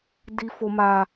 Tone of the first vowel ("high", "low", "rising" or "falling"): high